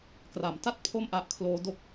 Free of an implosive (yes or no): yes